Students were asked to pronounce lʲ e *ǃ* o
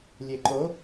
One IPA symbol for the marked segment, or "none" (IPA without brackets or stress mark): ǃ